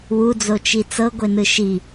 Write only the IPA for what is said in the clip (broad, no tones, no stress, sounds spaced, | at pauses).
w u d͡z o t͡ʃ i t͡s ɤ ɡʷ e n ɯ ʃ i